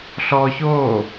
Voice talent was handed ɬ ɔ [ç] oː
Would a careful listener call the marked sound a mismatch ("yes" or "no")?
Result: no